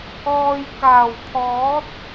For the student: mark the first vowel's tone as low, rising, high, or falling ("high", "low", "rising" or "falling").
low